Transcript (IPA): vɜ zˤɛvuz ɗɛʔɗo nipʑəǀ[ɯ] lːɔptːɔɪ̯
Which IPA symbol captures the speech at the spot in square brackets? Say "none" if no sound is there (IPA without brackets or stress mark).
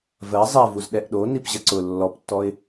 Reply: ʊ